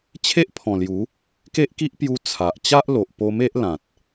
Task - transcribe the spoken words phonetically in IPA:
t͡ɕʰe˦ʔpʰɔ̃˨˩ lju˨˦ | ke˦ʔki˦ʔpju˧ t͡sʰa˨ʔ t͡ɕa˦ʔlo˨ʔ po˧me˦ʔ lã˨t̚

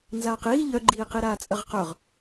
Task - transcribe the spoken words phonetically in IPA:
nzaːqiː ʎœɡ͡ǃiːqiɾaː t͡sʼɐʁqœʁ

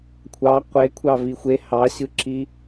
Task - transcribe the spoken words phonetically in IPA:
kʷʰɑ qʷekʷʰɑ vixʷe hɑɕɯǁi

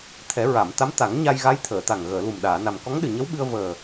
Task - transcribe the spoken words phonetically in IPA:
t̪ʰɛ˨˩˦ɹa˨˩˨mt̪a˧˥m t̪a˨˩˦ŋɲa˧jɣa˧˥j t̪ʰəː˨˩˨t̪a˨˩ŋɣəː˨˩˨lu˨˩m ɗaː˨˩˨na˨˩m kɔ˧˥ŋɗɨ˨˩ɲə˧˥w ɓɨ˧ə̯vəː˨˩

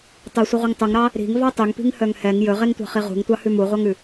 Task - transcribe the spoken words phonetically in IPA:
tˤɛsʷiʁʷiŋ tˤuŋɾɑ | ɾi̤ŋvɑ tˤʉŋpi̤ŋhœŋ hɛŋ jɵʁeŋtʷɑ̤χi ʁṳŋtʷɑhʉ muʁʷɑŋʉ

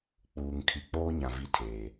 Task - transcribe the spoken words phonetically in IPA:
k͡puː˨ŋ kʰi˨k͡poː˦ ɲã˨ vi˦tʰeː˨

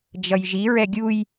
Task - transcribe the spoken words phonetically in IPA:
d͡ʒʌjʒiɹɛ ɡʲuj

